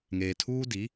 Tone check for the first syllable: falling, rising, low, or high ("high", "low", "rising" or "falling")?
low